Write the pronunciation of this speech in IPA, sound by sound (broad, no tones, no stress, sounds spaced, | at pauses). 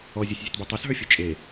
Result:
ɔ zʲ o sʲ zʲ u t b u tˤ o s ɦ ə˞ fʲ o t͡ʃʼ e